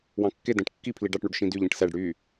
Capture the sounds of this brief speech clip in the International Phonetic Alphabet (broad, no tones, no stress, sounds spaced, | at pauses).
w ɑ̃ kː e d æ̃ ʈ kː i pʰ l i ɖ ɑ ʈ ɳ u ɖ ʃ ĩ d y ʎ ĩ ʈ s æ ɖ ɽ y